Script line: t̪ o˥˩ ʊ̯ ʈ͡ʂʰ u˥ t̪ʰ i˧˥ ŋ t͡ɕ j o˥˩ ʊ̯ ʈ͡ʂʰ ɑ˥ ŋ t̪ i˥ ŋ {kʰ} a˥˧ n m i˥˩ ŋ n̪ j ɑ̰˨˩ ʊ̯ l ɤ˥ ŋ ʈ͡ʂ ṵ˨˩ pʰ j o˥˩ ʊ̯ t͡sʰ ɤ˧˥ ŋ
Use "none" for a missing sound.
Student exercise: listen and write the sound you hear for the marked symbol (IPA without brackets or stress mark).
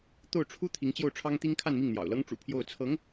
kʰ